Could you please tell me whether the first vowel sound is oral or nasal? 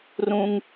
nasal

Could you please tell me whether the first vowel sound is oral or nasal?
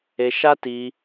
oral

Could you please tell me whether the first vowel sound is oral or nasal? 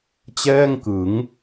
oral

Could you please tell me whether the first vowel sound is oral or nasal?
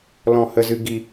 nasal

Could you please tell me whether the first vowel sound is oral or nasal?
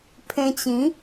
nasal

